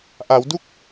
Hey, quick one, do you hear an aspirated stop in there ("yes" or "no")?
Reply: no